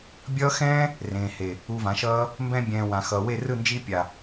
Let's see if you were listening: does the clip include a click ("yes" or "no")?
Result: no